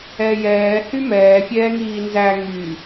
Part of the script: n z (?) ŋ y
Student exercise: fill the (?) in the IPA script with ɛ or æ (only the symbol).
æ